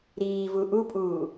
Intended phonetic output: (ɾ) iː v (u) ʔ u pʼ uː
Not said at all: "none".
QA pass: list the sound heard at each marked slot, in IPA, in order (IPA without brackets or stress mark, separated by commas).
ɾ, u